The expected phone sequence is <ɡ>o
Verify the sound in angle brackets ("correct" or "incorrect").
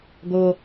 correct